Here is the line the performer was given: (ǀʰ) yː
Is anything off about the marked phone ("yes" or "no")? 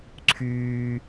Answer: no